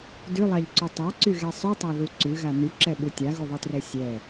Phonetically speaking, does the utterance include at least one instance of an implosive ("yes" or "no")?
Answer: yes